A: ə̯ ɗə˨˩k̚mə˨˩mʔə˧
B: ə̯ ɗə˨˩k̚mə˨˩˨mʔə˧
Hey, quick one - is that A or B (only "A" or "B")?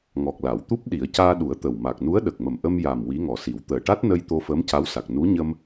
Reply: A